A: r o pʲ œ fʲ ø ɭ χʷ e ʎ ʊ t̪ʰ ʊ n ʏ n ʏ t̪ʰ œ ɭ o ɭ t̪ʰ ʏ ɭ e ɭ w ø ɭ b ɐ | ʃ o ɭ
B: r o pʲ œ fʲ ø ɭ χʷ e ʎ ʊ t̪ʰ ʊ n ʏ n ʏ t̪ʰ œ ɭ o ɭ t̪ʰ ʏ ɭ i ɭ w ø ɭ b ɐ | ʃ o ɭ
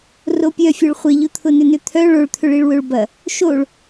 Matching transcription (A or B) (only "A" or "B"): B